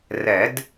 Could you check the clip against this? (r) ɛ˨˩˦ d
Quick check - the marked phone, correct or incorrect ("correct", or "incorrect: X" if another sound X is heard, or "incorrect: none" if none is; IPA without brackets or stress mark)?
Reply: correct